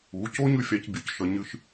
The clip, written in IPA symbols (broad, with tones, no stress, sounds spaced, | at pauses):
u˨˦ c o˦ ɲ ʉ˦ fʲ a˦ c bʲ ʉ˨ c ʃ ʌ˦ ɲ ɨ˦ ʃ